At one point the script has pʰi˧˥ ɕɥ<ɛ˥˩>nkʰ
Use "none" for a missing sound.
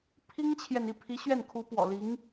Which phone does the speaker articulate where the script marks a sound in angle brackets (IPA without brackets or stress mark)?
ɛ˥˩